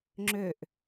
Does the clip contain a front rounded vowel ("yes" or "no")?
yes